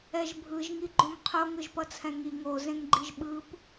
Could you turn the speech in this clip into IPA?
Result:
ɛ ʒ bʱ ɯ ʒ ŋ i ɡ͡ǃ õ ŋ qʰ o ŋ ɯ ʒ p ʌ t͡sʰ ɛ̃ ŋ i ŋ o z ẽ ŋ ɡ͡ǃ i ʒ ɓ ɯ p

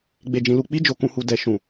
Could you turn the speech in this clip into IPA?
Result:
ɡ͡b e˨ d͡ʒ ĩ˨ l u˨ k͡p i˧ d͡ʒ o˨ k ũ˨ h u˨ d ɛ˨ ʃ ũ˨

